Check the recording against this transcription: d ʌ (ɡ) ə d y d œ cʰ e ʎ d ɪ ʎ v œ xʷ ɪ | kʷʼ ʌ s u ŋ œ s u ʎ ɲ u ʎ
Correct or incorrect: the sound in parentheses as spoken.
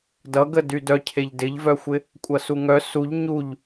correct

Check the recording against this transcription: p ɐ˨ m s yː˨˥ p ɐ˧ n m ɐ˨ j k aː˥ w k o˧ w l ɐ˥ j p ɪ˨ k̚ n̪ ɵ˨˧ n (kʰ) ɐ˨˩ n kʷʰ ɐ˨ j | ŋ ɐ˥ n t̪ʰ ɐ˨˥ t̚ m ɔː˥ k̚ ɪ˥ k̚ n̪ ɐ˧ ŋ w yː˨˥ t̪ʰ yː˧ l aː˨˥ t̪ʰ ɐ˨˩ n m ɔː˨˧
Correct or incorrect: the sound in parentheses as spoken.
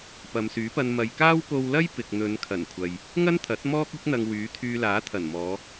correct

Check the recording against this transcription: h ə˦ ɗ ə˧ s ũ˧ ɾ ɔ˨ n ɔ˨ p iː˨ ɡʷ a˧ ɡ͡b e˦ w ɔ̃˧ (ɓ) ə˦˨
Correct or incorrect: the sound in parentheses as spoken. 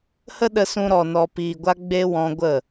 incorrect: ɡʷ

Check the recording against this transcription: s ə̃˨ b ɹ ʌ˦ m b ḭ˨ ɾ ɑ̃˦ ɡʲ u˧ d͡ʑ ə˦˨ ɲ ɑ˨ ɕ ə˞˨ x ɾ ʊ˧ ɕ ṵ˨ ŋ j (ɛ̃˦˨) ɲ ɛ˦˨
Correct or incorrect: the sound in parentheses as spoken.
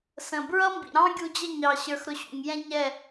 incorrect: ɛ̃˦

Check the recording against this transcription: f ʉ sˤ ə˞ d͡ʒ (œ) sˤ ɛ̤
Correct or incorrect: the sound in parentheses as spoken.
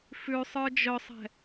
correct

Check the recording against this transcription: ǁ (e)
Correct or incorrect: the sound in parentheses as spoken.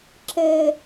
incorrect: ɘ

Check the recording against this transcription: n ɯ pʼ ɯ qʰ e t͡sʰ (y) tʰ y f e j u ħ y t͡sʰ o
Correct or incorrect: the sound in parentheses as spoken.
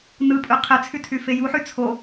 correct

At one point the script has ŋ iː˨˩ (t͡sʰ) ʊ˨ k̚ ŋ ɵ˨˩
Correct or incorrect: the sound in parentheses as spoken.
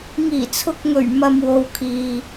correct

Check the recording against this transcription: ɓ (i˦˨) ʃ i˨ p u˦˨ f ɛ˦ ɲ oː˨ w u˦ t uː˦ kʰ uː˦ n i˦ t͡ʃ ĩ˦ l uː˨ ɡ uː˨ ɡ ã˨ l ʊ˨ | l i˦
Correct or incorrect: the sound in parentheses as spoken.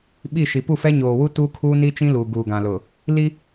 correct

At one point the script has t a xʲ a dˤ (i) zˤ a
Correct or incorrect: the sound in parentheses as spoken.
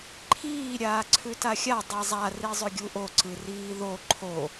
correct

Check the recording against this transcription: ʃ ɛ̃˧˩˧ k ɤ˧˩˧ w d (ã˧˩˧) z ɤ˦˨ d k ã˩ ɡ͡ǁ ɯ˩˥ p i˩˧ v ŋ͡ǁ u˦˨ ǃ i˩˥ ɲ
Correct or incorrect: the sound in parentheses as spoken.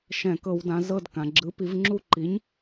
incorrect: ã˩˧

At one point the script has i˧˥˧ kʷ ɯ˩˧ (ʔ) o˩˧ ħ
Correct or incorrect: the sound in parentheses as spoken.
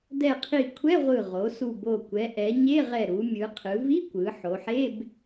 incorrect: ħ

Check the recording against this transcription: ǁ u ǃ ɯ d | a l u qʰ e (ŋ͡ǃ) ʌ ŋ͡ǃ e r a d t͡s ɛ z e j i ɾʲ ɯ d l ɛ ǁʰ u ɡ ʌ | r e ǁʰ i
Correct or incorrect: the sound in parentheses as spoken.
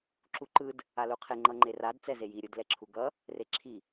correct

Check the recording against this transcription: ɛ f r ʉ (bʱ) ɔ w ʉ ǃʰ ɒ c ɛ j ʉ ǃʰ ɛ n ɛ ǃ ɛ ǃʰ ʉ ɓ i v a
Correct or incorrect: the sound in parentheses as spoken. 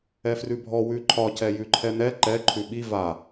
correct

